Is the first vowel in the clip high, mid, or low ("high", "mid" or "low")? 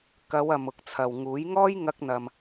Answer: low